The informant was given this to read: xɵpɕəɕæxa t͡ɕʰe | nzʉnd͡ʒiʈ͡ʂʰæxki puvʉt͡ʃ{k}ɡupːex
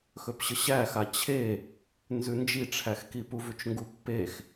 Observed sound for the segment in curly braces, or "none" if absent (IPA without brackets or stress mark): ŋ